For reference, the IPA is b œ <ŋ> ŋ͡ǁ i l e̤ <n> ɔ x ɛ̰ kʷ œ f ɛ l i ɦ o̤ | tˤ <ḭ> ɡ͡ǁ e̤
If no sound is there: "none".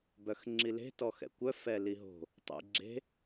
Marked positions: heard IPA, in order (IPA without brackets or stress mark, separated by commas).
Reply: x, t, ḭ